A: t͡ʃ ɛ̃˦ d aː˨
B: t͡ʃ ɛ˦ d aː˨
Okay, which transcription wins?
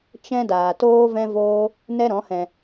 A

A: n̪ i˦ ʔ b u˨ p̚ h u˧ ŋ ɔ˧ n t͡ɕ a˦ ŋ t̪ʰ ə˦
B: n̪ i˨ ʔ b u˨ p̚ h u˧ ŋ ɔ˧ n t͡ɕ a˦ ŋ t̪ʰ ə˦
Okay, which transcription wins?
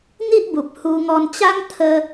A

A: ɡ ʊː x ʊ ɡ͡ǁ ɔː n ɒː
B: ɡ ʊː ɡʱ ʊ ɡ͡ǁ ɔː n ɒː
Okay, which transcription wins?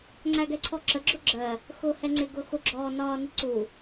A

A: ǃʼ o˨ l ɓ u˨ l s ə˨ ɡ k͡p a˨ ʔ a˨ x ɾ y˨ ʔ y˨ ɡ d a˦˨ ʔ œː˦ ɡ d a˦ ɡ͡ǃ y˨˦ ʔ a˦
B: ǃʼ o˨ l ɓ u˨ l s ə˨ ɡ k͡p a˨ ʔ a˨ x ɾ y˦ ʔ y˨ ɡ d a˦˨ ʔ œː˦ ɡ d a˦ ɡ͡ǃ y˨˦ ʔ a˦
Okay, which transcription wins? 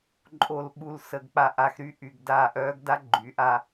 B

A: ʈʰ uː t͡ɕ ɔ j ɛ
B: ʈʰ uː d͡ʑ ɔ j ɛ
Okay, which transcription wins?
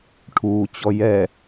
A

